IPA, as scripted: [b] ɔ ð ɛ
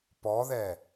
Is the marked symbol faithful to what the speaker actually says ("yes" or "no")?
no